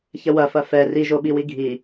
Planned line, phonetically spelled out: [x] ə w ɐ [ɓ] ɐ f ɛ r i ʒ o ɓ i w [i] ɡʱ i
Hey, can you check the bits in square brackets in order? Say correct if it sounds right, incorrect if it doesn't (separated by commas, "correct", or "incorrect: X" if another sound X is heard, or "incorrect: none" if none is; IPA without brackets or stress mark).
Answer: incorrect: ç, incorrect: f, correct